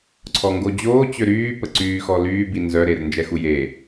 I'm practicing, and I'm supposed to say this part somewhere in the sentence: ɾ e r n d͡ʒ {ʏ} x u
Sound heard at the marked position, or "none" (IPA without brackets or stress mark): ɛ